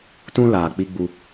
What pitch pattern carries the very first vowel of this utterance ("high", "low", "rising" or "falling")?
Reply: high